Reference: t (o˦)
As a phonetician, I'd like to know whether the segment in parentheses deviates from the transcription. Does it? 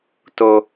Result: no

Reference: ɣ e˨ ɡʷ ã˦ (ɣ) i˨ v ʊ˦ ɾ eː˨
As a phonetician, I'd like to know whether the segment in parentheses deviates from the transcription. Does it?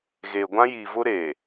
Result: yes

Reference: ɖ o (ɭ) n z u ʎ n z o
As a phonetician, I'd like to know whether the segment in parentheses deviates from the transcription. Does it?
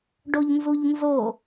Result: yes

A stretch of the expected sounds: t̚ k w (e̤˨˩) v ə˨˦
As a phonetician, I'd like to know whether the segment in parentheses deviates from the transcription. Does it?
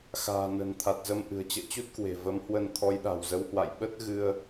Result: no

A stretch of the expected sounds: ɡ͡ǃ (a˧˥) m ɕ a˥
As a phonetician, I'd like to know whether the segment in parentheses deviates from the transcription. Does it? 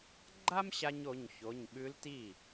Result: yes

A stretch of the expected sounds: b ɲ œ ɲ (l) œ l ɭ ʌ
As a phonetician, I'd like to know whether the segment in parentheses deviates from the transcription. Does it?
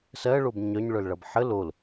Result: yes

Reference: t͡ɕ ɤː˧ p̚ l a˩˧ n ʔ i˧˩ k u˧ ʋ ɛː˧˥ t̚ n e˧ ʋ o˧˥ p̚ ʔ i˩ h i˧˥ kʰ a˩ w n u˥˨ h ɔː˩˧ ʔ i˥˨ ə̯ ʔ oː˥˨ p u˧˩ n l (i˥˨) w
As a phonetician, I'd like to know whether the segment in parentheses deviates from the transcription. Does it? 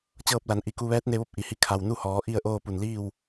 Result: yes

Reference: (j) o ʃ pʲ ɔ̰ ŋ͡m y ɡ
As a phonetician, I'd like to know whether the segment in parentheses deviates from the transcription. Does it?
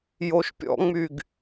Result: no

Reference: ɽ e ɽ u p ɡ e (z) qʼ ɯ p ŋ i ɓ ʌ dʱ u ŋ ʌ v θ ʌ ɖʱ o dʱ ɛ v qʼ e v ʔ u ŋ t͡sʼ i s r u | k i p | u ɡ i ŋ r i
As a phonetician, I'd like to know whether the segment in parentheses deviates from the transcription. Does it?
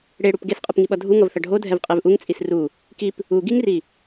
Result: yes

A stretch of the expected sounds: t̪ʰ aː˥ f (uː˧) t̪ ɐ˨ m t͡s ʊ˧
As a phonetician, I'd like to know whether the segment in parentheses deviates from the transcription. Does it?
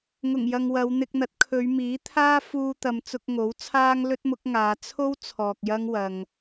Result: no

